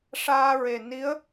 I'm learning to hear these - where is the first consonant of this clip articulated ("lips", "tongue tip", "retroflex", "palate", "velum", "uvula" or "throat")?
retroflex